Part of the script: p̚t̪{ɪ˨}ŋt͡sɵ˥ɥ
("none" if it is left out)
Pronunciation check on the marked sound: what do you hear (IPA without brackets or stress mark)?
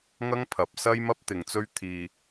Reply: ɪ˨˧